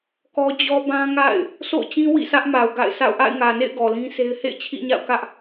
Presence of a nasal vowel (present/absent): present